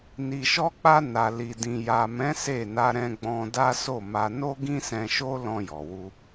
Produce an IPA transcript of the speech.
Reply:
n i˨ ʃ ɔ˧ k͡p a˧ n a˨ l i˨ d ĩ˨ j a˨ m ɛ̃˨˦ s e˦˨ n a˧ ɾ ɛ̃˧ ɡ͡b ɔ̃˧ d a˦ s o˦˨ m a˧ n o˦ ɡ ĩ˦ s ɛ̃˧ ʃ o˦ l ɔ̃˧ j ɔ˨ w u˧

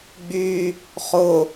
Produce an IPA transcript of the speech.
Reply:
ɡ͡b y | χ ʊ

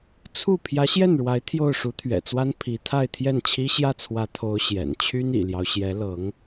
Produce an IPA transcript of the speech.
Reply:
t͡sʰ u˥˩ pʰ j ä˧˥ ɕ j ɛ˥˩ n ɻ w a˧˥ ɪ̯ t̪ʰ j o˥˩ ʊ̯ ʂ u˧˥ t̪ʰ ɥ ɛ̰˨˩ t͡s w a˥ n pʰ i˧˥ t̪ʰ a˥˧ ɪ̯ t̪ʰ j ɛ˥˩ n t͡ɕʰ i˥ ɕ j ä˥˩ t͡sʰ w ä˧˥ t̪ʰ o˧˥ ʊ̯ ɕ j ɛ̰˨˩ n t͡ɕʰ y˥ n ḭ˨˩ l j ɑ˦ ʊ̯ ɕ j ɛ˧˥ l ɤ˧˥ ŋ

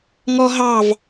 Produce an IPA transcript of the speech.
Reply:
ŋ ɔ ɦ ɑ v

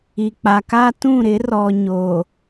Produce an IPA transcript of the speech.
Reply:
i˨ k͡p a˨ k a˦ t ũ˦˨ ɾ ɪ˨˦ r ɔ˨ ɲ o˨

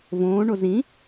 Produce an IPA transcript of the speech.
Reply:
v õː ɳ o z ĩ

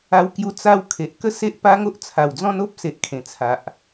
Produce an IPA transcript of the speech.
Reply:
a˧ w k j u˧ t͡s a˦ w kʰ e˨ ʔ k ə˦ s e˦ ʔ p a˦ ŋ o˦ ʔ t͡sʰ a˨˩ w d͡z ɔ̃˦ n o˦ p̚ s e˨ ʔ kʰ ẽ˨˩ t͡sʰ a˨ ʔ

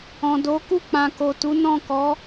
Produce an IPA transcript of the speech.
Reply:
ɔ̃˨ d o˨˦ k u˦˨ k͡p ã˨ k o˨ t u˨˦ n ɔ̃˦˨ k ɔ˨˦

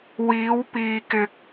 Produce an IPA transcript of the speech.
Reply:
w iː˨˧ w p iː˨ k ɪ˨ k̚

